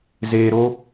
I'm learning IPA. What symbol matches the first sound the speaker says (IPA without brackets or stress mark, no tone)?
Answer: z